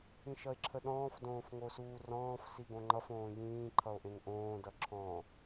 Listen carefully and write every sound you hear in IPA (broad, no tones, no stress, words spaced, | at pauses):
ĩʃʌe̯ǁʰəɗɔ̃ːf dõːfŋosuːrɔ̃ːf siɡõŋ͡ǃʌf õːjĩː ǃʰʌo̯ʔẽŋʔõː dʌǁʰɔ̃